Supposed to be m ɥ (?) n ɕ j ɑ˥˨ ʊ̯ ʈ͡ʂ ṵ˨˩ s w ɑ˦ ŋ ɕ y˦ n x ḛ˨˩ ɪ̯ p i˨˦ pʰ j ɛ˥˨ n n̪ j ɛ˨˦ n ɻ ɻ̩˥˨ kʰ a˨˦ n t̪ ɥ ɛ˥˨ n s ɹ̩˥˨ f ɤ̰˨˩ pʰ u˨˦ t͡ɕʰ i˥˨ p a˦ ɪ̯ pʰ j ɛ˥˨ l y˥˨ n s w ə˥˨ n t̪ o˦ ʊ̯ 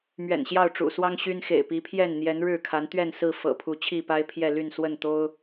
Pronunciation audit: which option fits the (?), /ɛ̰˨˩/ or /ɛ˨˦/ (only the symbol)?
ɛ̰˨˩